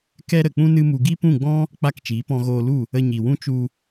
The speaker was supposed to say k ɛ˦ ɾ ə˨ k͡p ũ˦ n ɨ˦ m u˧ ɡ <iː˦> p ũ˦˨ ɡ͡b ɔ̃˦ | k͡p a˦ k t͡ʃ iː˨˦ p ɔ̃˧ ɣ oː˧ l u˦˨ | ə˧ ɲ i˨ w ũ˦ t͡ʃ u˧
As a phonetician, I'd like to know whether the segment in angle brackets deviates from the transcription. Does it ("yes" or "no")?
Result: yes